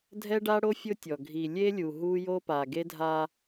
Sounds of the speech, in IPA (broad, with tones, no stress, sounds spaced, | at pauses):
dʱ ɛ˦ ɖ a˦ ɽ o˦ fʲ ʊ˦ tʲ ɔ˨ ɡʱ i˨ lʲ e˦ lʲ u˨ ɦ u˦ j o˦ p a˨ ɡ e˦ dʱ a˦